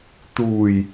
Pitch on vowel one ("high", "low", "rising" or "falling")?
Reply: low